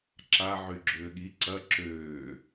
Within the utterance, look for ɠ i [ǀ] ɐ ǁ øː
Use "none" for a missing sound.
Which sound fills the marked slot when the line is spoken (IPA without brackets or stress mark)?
ǀ